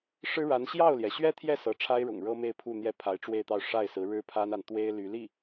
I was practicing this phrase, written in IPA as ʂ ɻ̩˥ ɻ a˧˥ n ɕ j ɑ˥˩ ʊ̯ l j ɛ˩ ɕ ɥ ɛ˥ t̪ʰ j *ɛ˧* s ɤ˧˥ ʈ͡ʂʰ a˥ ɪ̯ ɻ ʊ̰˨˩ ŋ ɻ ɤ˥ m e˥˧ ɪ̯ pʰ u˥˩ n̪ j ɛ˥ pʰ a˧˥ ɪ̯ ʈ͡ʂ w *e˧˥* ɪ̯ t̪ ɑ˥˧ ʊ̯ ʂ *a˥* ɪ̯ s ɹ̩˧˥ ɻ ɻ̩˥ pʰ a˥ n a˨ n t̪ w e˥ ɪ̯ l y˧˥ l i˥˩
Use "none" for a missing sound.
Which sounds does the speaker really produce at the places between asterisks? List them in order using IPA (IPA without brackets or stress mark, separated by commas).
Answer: ɛ˥˩, e˥˧, a˥˩